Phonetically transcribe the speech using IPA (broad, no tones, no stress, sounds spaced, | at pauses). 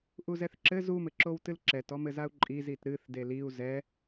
ʔ u z ɛ θ ǁ ɘ z u m ɘ ǁ o w t ɨ l ǁ ɛ t ɔ m ɘ z a u̯ ǃʼ i z i t ɾ ɨ θ d e l i u̯ z ɛ